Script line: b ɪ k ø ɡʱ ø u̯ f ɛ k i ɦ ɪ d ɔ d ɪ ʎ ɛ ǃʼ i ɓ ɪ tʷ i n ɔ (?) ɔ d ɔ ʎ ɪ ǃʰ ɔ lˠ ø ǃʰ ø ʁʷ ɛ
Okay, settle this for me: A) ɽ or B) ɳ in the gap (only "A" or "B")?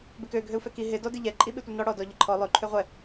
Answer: A